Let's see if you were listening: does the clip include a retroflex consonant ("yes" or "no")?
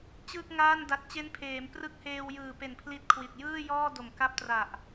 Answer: no